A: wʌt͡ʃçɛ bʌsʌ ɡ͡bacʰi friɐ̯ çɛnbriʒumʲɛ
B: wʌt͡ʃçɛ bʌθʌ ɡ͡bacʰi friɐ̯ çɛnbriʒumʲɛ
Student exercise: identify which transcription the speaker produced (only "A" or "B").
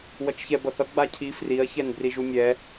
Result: B